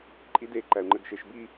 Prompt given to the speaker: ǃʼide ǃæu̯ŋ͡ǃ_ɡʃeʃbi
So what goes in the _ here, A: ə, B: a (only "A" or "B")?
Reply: A